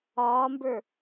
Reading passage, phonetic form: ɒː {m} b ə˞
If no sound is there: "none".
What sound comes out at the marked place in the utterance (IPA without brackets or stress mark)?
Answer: m